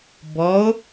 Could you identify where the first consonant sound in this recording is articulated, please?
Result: labial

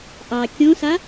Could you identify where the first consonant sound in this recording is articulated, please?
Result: glottal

